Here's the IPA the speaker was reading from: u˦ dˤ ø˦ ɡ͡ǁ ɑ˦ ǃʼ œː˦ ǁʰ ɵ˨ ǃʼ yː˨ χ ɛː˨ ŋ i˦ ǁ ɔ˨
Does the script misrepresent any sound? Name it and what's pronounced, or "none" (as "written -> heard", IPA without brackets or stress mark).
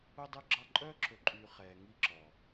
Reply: none